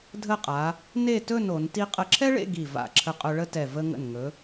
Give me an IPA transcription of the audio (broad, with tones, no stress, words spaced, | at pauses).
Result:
dʱə˥˧qʼa˩˧ | ne˥˧tɵ˥˧n o˩˧nti˥ qʼə˧˩ǁʰɛ˥ɭḛ˥˧ ɡi˧˩ va̰˧˩ǁʰə˧qʼɵ˧ ɭə˥tɛ˧˩ və˧ŋə̰˧˩nŋɵ˩˧